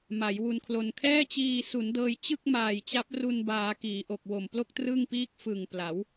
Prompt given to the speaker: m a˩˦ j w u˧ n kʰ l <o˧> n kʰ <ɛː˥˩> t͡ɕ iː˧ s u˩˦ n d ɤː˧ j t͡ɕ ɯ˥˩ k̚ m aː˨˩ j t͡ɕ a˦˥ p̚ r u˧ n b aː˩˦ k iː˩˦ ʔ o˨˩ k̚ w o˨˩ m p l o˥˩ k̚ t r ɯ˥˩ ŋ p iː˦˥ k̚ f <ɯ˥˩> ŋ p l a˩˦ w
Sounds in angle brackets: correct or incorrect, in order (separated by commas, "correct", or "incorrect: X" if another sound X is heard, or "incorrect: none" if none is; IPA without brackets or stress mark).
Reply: correct, correct, incorrect: ɯ˨˩